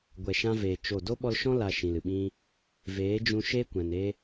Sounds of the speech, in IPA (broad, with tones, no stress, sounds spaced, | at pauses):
ɡʷ ɛ˨ ʃ ã˧ v eː˨ t͡ʃ o˦˨ d o˦ ɓ ɔ˧ l ʃ ɔ̃˦ l a˨ ʃ ĩ˨ l ɨ˨ ɓ ĩ˦ | v eː˨˦ d͡ʒ ũ˧ ʃ eː˦ kʷ ɛ̃˨ n eː˦